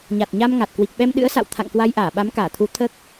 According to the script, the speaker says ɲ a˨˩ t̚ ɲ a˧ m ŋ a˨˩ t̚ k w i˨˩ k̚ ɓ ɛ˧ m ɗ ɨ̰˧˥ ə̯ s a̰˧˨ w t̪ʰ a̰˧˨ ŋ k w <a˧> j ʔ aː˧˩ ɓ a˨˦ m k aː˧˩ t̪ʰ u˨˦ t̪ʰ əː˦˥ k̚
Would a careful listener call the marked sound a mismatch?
no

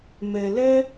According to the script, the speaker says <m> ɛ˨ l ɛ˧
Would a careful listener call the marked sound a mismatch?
no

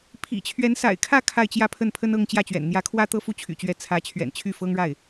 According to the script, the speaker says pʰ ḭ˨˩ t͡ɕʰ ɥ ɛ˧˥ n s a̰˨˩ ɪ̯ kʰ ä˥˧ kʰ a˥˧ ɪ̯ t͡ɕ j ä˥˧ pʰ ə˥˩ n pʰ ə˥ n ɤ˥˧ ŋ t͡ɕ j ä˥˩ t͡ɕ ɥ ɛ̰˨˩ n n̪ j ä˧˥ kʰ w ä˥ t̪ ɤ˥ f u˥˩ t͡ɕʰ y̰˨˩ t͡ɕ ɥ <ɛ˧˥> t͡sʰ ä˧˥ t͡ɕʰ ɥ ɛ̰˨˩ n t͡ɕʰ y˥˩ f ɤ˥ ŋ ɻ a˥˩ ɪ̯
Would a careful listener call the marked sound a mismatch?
no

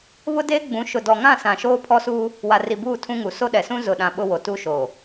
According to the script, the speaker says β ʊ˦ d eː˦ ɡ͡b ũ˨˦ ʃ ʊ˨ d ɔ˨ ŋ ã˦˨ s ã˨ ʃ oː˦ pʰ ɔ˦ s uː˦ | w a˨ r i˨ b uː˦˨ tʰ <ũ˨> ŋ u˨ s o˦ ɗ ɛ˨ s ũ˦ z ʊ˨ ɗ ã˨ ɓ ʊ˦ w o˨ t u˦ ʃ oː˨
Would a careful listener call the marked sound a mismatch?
yes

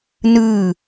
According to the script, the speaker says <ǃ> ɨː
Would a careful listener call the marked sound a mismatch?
yes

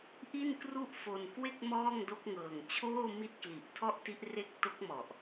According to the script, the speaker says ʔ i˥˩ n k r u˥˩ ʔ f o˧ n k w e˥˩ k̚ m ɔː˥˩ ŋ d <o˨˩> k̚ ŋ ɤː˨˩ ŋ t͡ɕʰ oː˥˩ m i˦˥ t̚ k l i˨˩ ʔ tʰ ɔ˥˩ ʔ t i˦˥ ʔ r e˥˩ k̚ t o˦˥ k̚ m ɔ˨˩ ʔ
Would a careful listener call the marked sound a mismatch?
yes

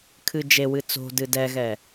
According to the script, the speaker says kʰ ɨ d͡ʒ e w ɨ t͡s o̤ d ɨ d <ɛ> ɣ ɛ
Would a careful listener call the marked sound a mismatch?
no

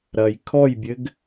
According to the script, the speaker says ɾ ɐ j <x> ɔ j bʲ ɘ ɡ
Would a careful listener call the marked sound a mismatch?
yes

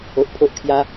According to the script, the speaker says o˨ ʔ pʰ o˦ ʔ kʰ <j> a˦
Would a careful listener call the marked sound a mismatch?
no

